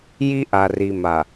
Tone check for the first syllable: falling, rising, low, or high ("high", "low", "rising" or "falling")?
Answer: high